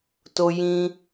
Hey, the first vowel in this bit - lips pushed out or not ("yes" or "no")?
yes